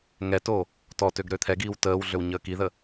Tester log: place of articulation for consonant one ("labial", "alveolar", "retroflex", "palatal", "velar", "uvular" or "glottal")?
velar